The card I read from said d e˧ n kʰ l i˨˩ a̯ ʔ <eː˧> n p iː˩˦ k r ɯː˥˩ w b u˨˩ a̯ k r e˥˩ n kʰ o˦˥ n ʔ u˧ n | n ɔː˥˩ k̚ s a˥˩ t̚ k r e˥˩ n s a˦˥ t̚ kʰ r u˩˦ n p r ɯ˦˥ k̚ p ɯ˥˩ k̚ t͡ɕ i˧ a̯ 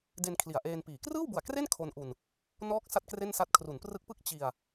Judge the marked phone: correct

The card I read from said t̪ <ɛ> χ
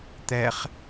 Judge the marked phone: correct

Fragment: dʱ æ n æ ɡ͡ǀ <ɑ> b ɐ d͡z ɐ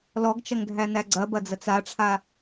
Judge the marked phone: incorrect: ɐ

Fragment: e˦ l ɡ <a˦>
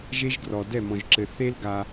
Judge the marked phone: correct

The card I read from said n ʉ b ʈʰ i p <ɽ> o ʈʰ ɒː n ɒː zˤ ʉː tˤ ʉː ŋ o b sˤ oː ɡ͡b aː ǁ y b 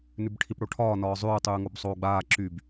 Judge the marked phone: correct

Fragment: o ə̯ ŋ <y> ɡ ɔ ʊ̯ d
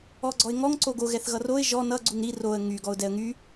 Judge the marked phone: correct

